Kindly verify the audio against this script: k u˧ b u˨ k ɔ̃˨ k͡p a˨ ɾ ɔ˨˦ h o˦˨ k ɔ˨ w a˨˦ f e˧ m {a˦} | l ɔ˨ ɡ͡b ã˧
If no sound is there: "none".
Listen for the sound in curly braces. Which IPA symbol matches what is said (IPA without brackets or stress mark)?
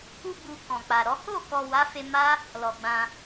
a˦